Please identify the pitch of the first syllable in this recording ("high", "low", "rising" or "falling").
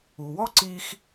low